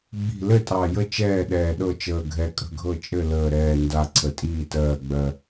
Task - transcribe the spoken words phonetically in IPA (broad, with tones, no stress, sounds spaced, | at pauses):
ɡ͡b i̤˦˨ l ɘ˦˨ tʼ ɑ˨˩ j ə˦˨ t͡ʃ ɛː˦˨ ɗ ɛː˨˩ ɗ ɤ˦˨ t͡ʃ əː˨˩ ɡʱ ɛ˨˩ kʼ ə̤˦˨ ɡʱ ɤ˦˨ t͡ʃʼ ɘ˦˨ l əː˨˩ ɾ ɛː˨˩ n d a˨˩ ǀʰ ə˨˩ tʼ iː˦˨ t ɜː˨˩ ɡ͡b ɜ˨˩